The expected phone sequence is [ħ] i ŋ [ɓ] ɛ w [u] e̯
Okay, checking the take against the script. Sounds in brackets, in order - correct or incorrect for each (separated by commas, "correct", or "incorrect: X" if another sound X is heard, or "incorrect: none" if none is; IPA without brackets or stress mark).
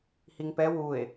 incorrect: h, incorrect: p, correct